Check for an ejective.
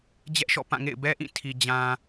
absent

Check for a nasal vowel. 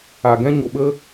present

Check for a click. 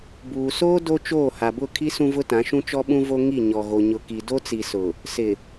absent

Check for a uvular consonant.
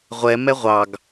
present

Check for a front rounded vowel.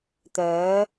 present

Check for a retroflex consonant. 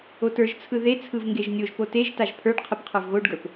present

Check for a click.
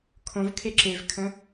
present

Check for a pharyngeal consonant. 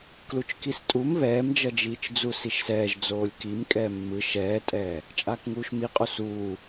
absent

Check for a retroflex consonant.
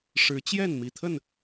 present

